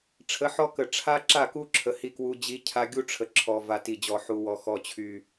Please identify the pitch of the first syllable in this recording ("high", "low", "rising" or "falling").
rising